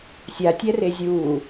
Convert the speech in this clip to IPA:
sʲatʲɛ rezʲuː

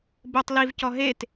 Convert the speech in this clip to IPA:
botˤ livcɔ ɦet

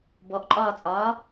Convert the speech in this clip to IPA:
bɔʔǃʼɒːt͡sʼɒː

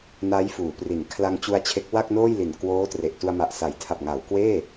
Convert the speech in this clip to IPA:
na˦˥jfuː˩˦pri˩˦n kʰla˧ŋt͡ɕu˧a̯t͡ɕʰe˦˥k̚ wa˥˩k̚noː˥˩jli˨˩n kwoː˦˥ tre˨˩ʔtu˧a̯ma˨˩ʔ sa˩˦jtʰa˨˩p̚ŋa˩˦w kweː˥˩

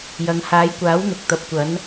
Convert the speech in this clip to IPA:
jɐ˨˧ŋ haː˨˧jkʷaː˨˥wn̪ʊ˨k̚ t̪ɐ˨p̚kʷɐ˨˥n

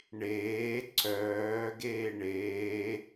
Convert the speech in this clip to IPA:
ɳeː ǀœː ɡeːɳeː

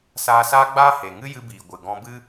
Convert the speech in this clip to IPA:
saː˧saː˦ɡ͡baː˦ he˨ ŋɨ˦jɨ˧biː˨ ɡʷɨ˨ɡɔ̃˧bɨ˦

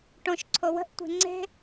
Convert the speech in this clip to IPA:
ʈõʃ ǀʰowə̤ʔ tʷe̤ŋ͡ǀe̤

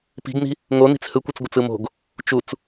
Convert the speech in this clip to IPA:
pi̤ɡn̪i̤ | ŋoni̤t͡s hɯkʷɯt͡sɡʷət͡s ɯmo̤ɡ | t͡ʃut͡s

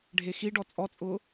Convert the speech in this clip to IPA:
ɖʱexiɖɔ t͡sʼɔt͡sʼʊː

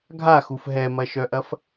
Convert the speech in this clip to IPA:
ɡʱaxuf ɦɛmɐʃœʔɐf

